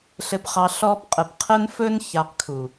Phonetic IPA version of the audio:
ɬ ɘ˧ p χ ɑ˧ ɬ ɔ˧ p qʼ ə˨ p qʰ ə˦ n f ɵ˦ n ç a˧ q kʰ u˨

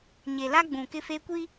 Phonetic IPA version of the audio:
ɲ e˨ l a˦ ɡ͡b ũ˨ k ɪ˦ f e˦ kʷ i˦

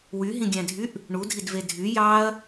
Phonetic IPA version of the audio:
w y ɦ ĩ ɡʲ æ̃ dʱ y ʔ | ɳ u dʱ i d v e dʱ y j ɑ ɐ̯

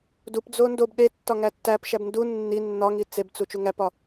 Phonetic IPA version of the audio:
d u p d͡z o n d o b ɗ e tː ɒ ŋ æ tː æ p ʃ æ b n d u nː i nː ɒ ŋ i t͡s e b t͡s u t͡ʃ u ŋ æ p ɒ

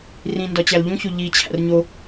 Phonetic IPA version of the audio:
r ĩ n d ɒ t͡ɕ æ l ʎ ũ ç o ʎ i t͡ɕʰ æ̰ r ɲ o

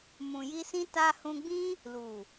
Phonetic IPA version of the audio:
m ũ˨ j i˧ s ĩ˦ t a˧ h ũ˧ ɡ͡b ĩ˦ | l u˨

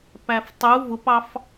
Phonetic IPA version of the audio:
p æ f tˤ u v ʊ p ɑ f

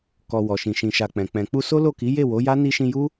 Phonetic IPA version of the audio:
k ɔ˨ w ɔ˨ ʃ ĩ˨ ʃ ĩ˨ ʃ a˨ k͡p ɛ̃˨ k͡p ɛ̃˨ k͡p u˧ s o˦ l o˦˨ k i˨˦ j e˦˨ w o˨˦ j a˦ n i˧ ʃ ĩ˧ j u˦

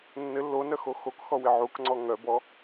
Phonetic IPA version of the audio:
nː ɘ lː o n œ x o x o k x ɔ w ɪ ʕ u k ŋ͡ǀ ɔ ŋ œ b ɔ

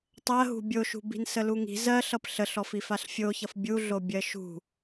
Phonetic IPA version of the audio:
tˤ ɜ ɦ ṳ bʲ o ʃ ṳ b i̤ n s ə l u ŋ i̤ z ɜ ɬ ʌ p ɬ ə ɬ ɔ f i f a ɬ fʲ o ç ʌ f bʲ u ɮ o bʲ ɜ ʃ ṳ

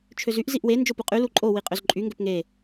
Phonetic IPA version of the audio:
t͡ʃʰ ø z y ʔ z i ʔ w e n d͡ʒ o p u qʼ y l u ǃʼ o w i qʼ ø z ǃʼ y ŋ ɡ ø p ŋ e

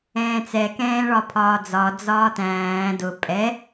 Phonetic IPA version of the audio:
ɛ̃ː t͡s ɛ k ɛ̃ː ɭ ɒ pʰ ɒː d͡z ɒ d͡z ɒː t æ̃ː d ʊ pʼ ɛ

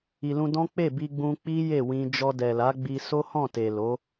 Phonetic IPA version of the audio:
i˨ l ũ˧ d ɔ̃˦ k͡p e˦˨ b i˧ ɡ͡b ũ˧ k͡p i˦ j e˦˨ w ĩ˧ d͡ʒ ɔ˧ d ɛ˨ l a˨˦ ɡ͡b i˧ s o˦ h ɔ̃˦˨ t e˨ l o˨˦

